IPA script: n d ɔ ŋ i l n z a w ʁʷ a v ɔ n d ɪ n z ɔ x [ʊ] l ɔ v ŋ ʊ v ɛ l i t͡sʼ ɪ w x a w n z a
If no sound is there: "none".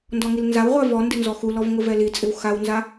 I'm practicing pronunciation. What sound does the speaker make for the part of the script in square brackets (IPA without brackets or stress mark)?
u